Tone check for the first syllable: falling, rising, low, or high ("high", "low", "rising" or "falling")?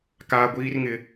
high